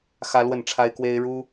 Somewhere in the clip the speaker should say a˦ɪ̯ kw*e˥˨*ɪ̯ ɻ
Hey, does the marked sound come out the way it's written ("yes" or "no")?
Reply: no